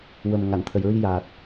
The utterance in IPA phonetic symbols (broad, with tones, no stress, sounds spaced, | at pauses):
w ə˨˩ m ŋ a˨˩˨ n t̪ʰ ə˨˩ j ɹ i˧ j aː˨˩ t̚